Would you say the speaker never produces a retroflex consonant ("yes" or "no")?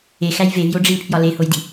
no